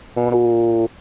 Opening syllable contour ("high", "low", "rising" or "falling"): high